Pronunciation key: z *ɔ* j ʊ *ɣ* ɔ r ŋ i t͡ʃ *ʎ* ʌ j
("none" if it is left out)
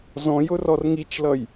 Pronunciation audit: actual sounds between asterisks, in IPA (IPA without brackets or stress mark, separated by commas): ɔ̃, r, l